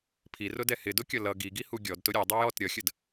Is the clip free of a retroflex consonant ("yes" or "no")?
yes